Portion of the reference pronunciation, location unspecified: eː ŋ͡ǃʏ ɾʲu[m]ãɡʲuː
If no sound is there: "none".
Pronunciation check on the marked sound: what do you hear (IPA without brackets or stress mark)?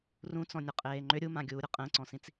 m